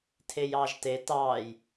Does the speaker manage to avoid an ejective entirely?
yes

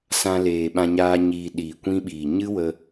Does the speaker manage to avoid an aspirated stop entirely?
yes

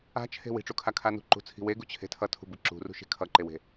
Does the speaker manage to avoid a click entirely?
no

